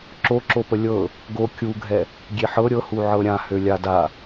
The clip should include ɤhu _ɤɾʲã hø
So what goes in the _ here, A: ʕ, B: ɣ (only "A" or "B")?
A